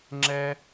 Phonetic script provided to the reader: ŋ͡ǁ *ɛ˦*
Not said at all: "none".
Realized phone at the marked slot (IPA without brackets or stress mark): ɛ˦